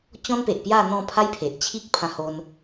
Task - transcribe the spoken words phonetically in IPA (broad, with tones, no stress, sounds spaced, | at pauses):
t͡ɕ ɔ̃˦ n p e˨ ʔ p j a˥˧ n̪ ɔ̃˥˧ pʰ a˦ j pʰ e˨ ʔ t͡ɕʰ i˦ k̚ pʰ ã˧ h o˧ n